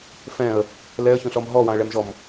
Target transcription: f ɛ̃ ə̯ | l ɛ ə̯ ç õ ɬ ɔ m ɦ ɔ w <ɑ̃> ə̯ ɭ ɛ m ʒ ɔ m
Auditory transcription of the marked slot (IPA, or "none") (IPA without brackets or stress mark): ɑ̃